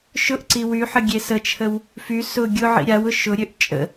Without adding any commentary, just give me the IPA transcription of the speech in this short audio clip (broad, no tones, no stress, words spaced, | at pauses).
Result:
ʃʊʔ ǀiwyħə ɡʲesət͡ʃʰəw | fy sʊ ɡʲʊ ʕḭɾʲawʊ ʃʊɾʲøʔ t͡ʃʼə̰